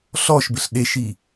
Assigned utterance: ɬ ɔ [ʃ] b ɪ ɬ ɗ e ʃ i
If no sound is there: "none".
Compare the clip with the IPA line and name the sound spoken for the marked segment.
ʃ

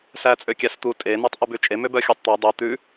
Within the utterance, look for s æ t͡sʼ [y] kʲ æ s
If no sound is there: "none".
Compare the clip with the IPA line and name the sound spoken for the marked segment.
ø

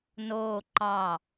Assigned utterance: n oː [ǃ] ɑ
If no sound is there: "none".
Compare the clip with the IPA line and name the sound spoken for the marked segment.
ǃ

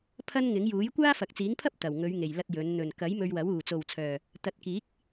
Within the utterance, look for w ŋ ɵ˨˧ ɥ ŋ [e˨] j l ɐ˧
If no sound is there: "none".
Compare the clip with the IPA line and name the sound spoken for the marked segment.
e˨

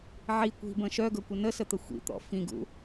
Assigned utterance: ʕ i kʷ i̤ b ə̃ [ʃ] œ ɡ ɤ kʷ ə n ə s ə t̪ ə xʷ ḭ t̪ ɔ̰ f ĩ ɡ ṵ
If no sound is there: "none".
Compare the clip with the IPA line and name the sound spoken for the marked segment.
ʃ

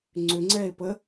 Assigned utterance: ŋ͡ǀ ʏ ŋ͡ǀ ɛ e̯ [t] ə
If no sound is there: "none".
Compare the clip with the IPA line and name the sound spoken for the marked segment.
p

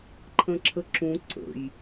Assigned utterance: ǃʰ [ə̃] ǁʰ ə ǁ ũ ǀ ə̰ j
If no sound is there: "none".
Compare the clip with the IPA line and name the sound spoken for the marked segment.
ə̃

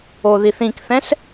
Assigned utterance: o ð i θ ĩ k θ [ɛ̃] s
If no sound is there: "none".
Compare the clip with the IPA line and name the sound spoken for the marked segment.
ɛ̃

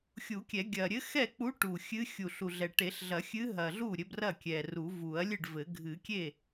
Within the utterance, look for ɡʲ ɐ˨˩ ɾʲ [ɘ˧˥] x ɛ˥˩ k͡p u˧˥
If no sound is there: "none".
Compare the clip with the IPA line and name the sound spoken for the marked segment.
ɘ˧˥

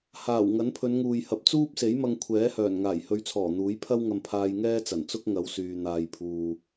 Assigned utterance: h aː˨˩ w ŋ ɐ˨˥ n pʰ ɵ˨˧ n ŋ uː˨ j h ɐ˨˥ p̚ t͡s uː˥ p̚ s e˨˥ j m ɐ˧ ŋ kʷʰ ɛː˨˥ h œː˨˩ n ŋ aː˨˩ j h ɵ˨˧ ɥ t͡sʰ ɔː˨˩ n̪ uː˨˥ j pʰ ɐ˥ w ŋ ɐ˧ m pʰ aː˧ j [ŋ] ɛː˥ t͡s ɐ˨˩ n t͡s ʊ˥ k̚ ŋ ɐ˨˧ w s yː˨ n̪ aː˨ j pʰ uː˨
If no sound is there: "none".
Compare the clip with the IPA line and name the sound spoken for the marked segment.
ŋ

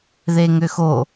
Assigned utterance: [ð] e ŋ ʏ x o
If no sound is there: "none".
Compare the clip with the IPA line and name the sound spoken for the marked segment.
ð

